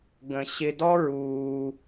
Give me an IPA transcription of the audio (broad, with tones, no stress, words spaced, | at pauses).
ɡə̃˧ ɕɪ˦ dɔ˦ɹuː˧